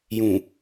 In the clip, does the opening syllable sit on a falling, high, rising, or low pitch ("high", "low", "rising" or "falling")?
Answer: low